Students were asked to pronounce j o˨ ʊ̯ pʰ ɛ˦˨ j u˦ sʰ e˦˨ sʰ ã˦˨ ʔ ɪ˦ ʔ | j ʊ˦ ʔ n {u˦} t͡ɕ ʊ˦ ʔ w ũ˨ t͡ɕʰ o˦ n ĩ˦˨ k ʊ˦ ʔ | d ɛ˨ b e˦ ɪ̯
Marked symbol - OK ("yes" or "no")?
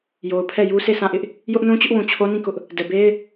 no